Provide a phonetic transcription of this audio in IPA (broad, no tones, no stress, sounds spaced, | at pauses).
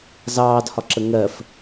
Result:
z ɑː d h ɒ ǁ ə ŋ ɜ f